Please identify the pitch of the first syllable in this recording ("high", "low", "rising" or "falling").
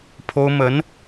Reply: high